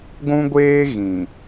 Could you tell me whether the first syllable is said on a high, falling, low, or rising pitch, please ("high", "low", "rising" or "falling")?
high